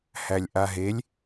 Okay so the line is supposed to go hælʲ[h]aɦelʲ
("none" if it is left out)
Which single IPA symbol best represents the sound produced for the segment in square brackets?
ʔ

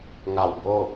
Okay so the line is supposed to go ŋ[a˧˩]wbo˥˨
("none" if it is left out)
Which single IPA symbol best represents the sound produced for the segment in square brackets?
a˧˩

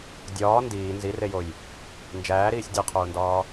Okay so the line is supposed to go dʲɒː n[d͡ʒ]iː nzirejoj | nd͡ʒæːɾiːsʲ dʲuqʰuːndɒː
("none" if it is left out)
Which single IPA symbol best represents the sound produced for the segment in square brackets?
d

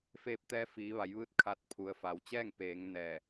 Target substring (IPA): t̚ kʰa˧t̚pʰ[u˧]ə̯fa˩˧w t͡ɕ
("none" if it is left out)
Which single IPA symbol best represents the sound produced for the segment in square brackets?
u˩˧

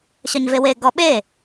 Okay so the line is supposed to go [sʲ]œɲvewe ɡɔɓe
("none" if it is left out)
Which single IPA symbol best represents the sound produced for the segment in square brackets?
ɕ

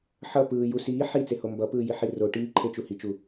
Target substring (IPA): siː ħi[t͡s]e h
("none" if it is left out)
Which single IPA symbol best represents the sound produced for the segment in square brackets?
t͡s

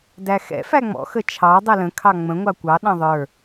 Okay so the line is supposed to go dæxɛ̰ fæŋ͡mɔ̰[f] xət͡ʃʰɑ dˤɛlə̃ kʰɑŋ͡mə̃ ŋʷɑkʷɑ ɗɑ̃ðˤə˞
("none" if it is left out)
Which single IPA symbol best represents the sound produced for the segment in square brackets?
none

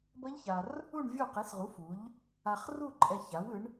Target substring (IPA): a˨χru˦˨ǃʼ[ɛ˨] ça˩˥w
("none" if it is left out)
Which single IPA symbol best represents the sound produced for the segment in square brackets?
ɛ˨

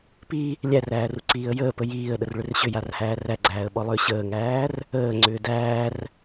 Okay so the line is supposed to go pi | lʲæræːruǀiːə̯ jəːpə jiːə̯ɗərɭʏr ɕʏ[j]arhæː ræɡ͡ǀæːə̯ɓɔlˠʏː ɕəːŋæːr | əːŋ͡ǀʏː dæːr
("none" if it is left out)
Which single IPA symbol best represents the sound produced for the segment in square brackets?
j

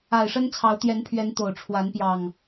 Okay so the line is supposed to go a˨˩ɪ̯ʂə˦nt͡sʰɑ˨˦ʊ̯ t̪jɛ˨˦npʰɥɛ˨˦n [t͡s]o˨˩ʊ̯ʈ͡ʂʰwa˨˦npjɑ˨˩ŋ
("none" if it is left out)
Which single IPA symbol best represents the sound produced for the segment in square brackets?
t̪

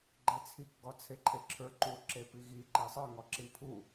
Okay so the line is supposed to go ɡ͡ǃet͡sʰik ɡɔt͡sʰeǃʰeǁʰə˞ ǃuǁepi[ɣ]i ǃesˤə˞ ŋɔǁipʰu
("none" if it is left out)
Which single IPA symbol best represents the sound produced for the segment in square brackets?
ɣ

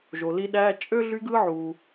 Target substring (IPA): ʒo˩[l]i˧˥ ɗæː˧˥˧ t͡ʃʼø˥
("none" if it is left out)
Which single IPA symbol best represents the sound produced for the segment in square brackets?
l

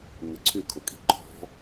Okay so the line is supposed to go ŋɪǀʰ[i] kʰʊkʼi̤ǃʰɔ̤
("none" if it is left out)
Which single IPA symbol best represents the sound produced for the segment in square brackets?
y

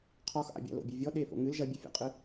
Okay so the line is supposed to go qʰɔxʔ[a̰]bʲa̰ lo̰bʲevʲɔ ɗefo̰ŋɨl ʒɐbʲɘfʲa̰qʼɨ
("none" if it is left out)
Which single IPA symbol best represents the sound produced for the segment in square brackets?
a̰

